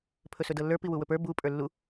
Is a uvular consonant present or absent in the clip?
absent